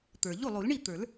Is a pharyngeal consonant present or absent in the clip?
absent